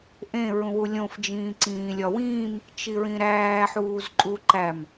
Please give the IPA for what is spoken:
ʔẽ ɹũwulʲõf d͡ʒĩːǀĩːlʲɒwĩːm | t͡ʃiɹĩɾæː ħuːzǃʼuǃæm

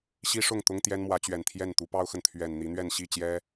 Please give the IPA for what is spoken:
ɕi˦ʂʊ˥˨ŋt̪ʊ˦ŋ t̪jɛ˦nmwä˨˦t͡ɕɥɛ˨˩nt̪ʰjɛ˥˨n t̪u˨˦pɑ˦ʊ̯xə˨n t̪ʰɥɛ˨˩nn̪i˨˦n̪ɥɛ˥˨n ɕi˥˨t͡ɕjɛ˦

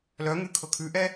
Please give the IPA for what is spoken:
lœŋʉkʰɤ kʰʉʔɛ

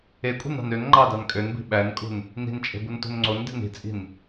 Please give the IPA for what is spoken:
ekʷʼe̤nɑ̤n øn ŋ͡ǃɑdɑn kʼønbi̤ ɓænkʼṳn | ni̤nt͡ʃʼe̤bunto̤n ŋ͡ǀonde̤n i̤t͡sʼi̤n

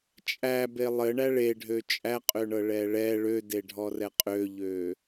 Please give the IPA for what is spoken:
t͡ʃʼæbe lˠɘ ɳæɭe ɖʱøt͡ʃʼæqʼøɳɤ ɭɛɭɛ ɭødeɖʱɔrɛ qʼøʎø

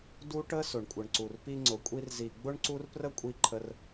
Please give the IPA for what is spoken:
du˦ʈə˦ sʊ˨ɳkʷʼə˨ɳǀu˨r pi˧ŋ͡ǀʊ˨kʷʼi˧r zi˨ ɡ͡bʊ˦ɳǀu˦r prə˦kʷʼi˧ǃʰə˧r

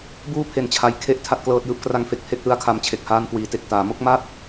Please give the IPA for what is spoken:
buː˥˩ pʰe˨˩nt͡ɕʰa˨˩jkʰe˦˥ʔ tʰa˥˩t̚klɤː˦˥t̚jɯː˦˥p̚ kra˦˥ŋfe˨˩k̚pʰe˦˥k̚ lɯ˦˥a̯kʰa˧mt͡ɕʰe˨˩k̚ haː˧nkwiː˩˦te˨˩k̚taː˩˦ mo˥˩k̚ma˥˩t̚

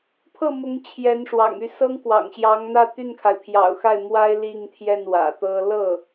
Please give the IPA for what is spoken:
pʰɤ˥˩mʊ˧˥ŋ t͡ɕʰjɛ˧˥nʂwɑ̰˨˩ŋy˥˩ sɤ˥ŋkwɑ̰˨˩ŋɕjɑ˧˥ŋn̪ä˥˧ t̪y˥˩nkʰa˩ɪ̯pʰjɑ̰˨˩ʊ̯xa˥˩ɪ̯ mwa˥ɪ̯ li˥˧ŋt̪ʰjɛ˥˩n wä̰˨˩t̪ɤ˥ lɤ˥˩

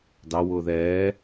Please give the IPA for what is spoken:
dɑwʊː ðɛː

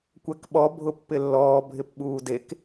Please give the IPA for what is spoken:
kʷɛkɓɔ bʱʊpːɪlːɔː bʱɪpɓuːdek

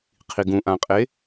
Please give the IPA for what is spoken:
qʰiɡũʔãqʼe

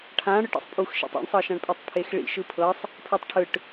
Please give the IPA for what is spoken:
ʈʰã ɽɯʈḭsˤpʼuxʃḭtˤ ḭɳsˤɤʃãɳpʼetˤ pʰexɭḭ ʃɯpʰɤsˤ | pʰetˤʈʰɯʈ

